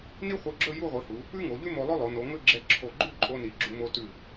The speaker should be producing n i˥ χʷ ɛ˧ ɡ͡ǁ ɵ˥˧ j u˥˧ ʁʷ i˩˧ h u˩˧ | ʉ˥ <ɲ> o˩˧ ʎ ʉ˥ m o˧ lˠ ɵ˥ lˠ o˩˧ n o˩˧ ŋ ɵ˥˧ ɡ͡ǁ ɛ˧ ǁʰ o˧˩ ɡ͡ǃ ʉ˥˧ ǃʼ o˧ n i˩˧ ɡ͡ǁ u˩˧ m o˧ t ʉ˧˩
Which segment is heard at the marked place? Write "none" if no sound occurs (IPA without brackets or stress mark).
ŋ